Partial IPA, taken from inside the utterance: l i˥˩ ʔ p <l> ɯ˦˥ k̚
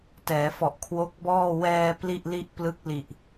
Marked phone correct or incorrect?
correct